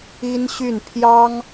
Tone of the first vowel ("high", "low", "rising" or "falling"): high